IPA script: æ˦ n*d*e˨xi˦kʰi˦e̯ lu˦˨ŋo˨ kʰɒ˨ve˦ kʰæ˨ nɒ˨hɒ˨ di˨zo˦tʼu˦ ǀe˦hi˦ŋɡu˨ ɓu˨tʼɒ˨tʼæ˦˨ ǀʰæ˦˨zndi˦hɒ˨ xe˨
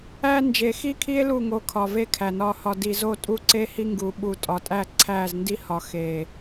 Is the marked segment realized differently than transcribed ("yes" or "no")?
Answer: yes